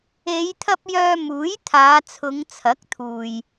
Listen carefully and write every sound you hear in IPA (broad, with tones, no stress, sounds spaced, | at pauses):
e˨˧ j t̪ʰ ɐ˧ p̚ j œː˧ m uː˨˥ j t̪ʰ aː˨˧ t͡sʰ ʊ˨˧ ŋ t͡sʰ ɐ˨˥ k̚ t̪ʰ uː˨ j